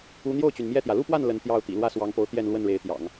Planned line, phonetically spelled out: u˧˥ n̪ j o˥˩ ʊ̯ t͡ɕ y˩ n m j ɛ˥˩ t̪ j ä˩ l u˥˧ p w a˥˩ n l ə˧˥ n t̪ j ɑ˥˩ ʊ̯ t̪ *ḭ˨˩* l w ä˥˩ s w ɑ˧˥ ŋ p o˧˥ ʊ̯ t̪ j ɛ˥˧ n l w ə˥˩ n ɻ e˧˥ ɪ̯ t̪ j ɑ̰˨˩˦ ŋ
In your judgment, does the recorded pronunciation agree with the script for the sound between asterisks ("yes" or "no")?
yes